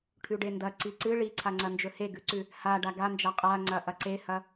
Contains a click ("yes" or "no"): yes